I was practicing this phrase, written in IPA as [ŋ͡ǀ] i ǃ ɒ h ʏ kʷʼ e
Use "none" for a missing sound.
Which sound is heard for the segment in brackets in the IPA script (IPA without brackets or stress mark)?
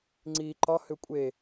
ŋ͡ǀ